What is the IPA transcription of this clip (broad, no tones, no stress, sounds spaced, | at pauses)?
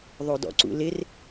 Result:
ðˤ o d ɔ̰ ǀ ṵ l ɪ r